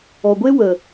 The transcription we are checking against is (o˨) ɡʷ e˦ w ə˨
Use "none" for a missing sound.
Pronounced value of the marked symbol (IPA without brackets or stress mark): ɔ˨